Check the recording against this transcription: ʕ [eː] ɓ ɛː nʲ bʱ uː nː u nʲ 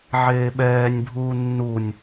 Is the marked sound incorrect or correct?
correct